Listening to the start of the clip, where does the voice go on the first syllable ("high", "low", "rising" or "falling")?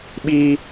high